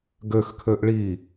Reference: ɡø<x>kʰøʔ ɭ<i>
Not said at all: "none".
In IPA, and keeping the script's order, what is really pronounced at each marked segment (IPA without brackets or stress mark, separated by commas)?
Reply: x, i